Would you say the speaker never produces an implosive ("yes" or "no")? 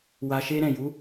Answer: yes